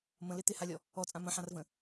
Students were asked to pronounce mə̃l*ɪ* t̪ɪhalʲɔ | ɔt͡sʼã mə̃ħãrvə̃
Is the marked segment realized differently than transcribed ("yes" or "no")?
no